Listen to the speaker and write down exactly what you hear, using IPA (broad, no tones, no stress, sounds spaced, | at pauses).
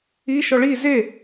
i ʃ ɔ ɭ i z e